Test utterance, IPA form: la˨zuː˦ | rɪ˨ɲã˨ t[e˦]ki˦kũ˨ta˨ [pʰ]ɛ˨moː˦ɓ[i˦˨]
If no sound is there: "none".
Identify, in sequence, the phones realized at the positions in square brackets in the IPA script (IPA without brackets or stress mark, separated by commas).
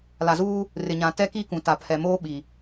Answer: ɛ˦, pʰ, i˨